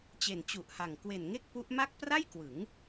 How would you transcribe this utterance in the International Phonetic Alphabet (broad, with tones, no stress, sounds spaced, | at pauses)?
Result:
t͡ɕ e˨˩ n t͡ɕ u˨˩ ʔ h a˨˩ ŋ k w e˨˩ n ŋ e˥˩ k̚ p u˦˥ ʔ m a˥˩ k̚ p r a˥˩ j k w ɯ˩˦ ŋ